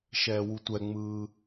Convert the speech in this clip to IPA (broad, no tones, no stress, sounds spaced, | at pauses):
ʃ ɛː w u tʷ ɛ ŋ͡m ɯː